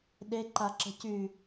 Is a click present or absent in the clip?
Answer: present